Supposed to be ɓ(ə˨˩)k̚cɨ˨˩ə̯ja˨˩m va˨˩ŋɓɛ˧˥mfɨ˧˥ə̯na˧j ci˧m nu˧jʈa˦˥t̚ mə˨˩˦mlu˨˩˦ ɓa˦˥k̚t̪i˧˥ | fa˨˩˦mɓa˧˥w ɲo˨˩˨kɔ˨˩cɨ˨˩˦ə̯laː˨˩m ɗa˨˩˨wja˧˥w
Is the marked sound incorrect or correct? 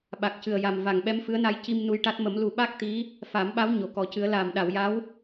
incorrect